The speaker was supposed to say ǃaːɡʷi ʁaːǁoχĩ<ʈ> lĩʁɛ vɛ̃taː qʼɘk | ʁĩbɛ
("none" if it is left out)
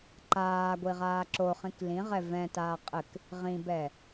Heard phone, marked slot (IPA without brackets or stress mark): k